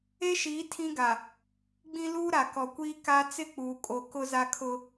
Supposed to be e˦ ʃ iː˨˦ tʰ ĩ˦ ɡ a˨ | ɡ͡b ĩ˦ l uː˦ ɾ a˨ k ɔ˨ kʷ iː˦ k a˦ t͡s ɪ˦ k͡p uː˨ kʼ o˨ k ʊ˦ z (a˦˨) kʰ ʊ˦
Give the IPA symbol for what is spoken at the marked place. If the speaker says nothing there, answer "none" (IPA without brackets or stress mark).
a˦